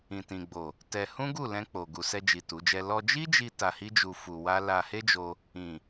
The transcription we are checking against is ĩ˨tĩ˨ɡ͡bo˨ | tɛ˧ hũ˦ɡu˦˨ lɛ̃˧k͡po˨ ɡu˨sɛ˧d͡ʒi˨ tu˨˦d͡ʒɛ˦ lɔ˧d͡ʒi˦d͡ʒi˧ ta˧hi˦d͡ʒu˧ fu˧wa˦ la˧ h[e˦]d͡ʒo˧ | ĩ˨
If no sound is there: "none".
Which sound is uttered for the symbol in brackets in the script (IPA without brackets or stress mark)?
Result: e˦